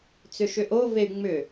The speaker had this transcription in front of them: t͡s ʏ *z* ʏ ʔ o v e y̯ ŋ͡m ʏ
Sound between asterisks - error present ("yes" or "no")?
yes